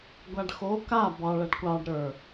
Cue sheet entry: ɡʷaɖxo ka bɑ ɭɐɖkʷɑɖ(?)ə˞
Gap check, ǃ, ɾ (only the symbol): ɾ